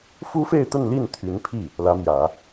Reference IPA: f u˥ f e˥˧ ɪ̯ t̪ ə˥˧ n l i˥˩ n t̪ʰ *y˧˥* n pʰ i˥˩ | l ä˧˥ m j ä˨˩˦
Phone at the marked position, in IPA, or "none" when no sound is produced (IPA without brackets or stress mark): y˧˥